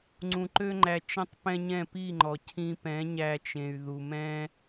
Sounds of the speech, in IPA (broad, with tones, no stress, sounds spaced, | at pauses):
ŋ͡ǀ ũ˨ ǃ ø˧ ŋ͡ǃ æ˨ t͡ʃ ɛ̃˧ tˤ p ɛ̃˦ ɲ ɛ̃˦˨ p i˦˨ ŋ͡ǃ ɔ˨ cʰ ĩ˧ p ɛ̃˨˦ ɲ æ˧ t͡ʃ ẽ˨ y̯ ð u˨ m ɛ̃˦